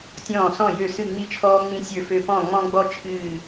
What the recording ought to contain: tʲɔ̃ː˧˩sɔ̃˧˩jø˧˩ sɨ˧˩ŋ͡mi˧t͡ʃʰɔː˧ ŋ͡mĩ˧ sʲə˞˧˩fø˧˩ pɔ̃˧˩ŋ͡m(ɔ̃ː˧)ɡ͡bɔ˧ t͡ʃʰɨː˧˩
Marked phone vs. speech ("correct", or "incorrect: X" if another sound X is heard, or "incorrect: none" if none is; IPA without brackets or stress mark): incorrect: ɔ̃˧